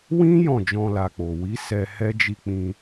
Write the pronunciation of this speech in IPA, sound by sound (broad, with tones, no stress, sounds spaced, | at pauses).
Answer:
w ĩ˦ j ɔ̃˦˨ d͡ʒ ɔ̃˧ l a˨ k͡p o˨ w i˨˦ s ɛ˧ h ɛ˦ d͡ʒ i˧ k͡p ĩ˧